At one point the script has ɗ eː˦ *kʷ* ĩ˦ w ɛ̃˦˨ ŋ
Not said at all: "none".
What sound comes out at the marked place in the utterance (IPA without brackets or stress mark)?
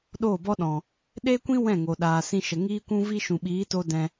kʷ